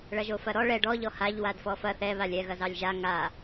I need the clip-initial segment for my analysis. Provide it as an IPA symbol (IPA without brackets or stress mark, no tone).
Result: ɭ